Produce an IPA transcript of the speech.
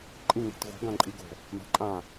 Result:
ǃʼ ĩ ŋ e̤ t ɣ o̤ ɡ ã ǃʼ i ɡ o̤ | m a̤ ǃʼ ã

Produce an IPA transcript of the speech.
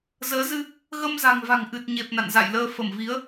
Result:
z əː˨˦ z ɨ˧ | ɣ ə˧ m z a̤˨˩ ŋ v a̤˨˩ ŋ ʔ ɨ˨˩ t̚ ɲ e˨˩ p̚ n a̰˧˨ n z a̰˧˨ j l əː˧ f ə˧˩ m v i˨˦ ə̯

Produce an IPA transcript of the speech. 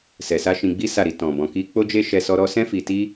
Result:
s ɛ˨ s a˧ ʃ ĩ˧ ɡ͡b i˦ s a˦˨ ɾ i˧ t ɔ̃˨ b ɔ̃˨ k i˧ k͡p o˦ d͡ʒ e˦ ʃ ɛ˧ s ɔ˦ ɾ ɔ˦ s ɛ̃˦ f i˧ t i˦

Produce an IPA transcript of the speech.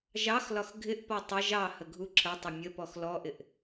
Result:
ʒ ɑ x l ɒ x ɡʱ ɪ ʔ p ɒ tˤ ə ʒ ɑ h ə ɡʱ u ǁʰ ə tˤ ə mʲ ə p ɔ x l ɔ ʔ ɪ ʔ

